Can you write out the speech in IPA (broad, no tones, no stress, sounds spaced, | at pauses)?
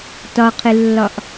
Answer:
t ɒ qʰ ɪ lː ɒ ʔ